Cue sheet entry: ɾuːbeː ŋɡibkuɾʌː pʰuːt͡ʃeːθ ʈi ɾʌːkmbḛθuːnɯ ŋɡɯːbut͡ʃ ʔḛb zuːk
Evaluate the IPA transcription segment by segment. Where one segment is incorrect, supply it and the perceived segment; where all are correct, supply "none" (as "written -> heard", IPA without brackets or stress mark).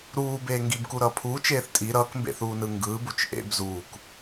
ʈ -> tʼ